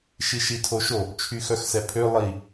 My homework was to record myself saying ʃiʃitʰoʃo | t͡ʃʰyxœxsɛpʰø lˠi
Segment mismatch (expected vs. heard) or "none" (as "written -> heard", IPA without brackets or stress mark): none